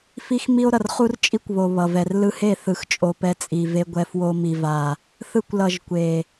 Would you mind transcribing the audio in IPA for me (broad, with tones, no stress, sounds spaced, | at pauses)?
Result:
f i˦ x m i˦ o̯ ɾ ʌ˨ r χ u˦ r t͡ʃʼ i˦ kʷ β o˨ β ʌ˨ v ɛ˨ r l ɯ˧ h e˦˨ θ ɯ˨ x t͡ʃʼ o˨ p ɛ˧ t͡sʼ i˨ v e˧ ɡʷ ɛ˧ f w o˧ m i˨ v a˨ | θ ɯ˧ kʷ l ʌ˨ ʒ kʷ e˨